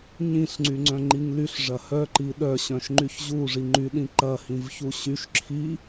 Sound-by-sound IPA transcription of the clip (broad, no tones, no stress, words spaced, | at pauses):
ɲĩɬŋ͡ǀyŋ͡ǀœ̃ ŋ͡ǃiŋlyɬ ʐɐhœ ǃiɗœɕœ̃ʃŋ͡ǃyç ʑuʐi ŋ͡ǃyɗĩ ǃɐhĩvçu ɕyʃ ǁʰi